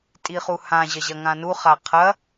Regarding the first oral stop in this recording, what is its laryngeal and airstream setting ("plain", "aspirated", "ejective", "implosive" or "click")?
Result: ejective